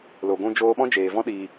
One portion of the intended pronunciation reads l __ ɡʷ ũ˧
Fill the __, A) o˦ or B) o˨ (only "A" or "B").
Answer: B